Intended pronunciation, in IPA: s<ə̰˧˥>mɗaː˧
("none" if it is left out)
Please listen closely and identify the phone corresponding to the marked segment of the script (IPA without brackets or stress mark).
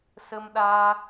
ə˧